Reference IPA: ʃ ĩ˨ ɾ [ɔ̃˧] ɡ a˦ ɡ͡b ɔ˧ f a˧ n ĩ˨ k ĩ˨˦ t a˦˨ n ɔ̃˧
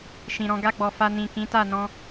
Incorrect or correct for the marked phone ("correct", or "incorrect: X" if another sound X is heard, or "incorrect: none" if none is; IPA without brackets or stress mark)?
correct